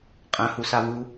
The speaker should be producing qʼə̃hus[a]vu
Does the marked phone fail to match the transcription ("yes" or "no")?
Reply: no